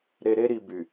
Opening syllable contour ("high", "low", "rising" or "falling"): low